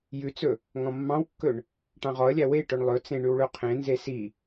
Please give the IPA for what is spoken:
j ʉ t͡s ɵ | ŋ ɔ̃ mː ɑ̃ w kː ɵ ɳ | ʈ ɑ̃ ʁ ɔ ə̯ lʲ æ w e ʈ ɵ ɳ lˠ ɵ t͡s ẽ ɳ ʉ w ɭ ɵ qʰ ẽ n z e s i

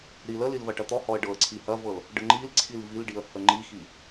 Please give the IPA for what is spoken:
ɾ i l ə l i l v ɐ ʈ ɐ t̪ ɔ h ɔ ə̯ ɖ ɤ ə̯ ǀʰ i h ɐ v ɤ l | ɖ ə ŋ͡ǃ i l ǀʰ i l v i l ɖ i ə̯ h ə ŋ͡ǃ i x i

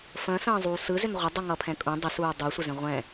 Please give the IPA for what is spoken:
f ə̃ː s ə̃ː zˤ uː s ɯ z ʏ n ʁʷ ə dˤ ɯ ŋ ʌ pʰ ɛ̃ kʼ ũ dˤ ə s uː dˤ u sʷ ə z ɛ̃ ʁʷ ɛ̃

